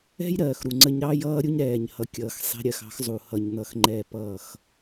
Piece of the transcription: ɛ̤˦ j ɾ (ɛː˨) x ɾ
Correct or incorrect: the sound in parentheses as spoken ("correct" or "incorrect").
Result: incorrect